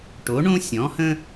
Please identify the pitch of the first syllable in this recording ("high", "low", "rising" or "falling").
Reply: rising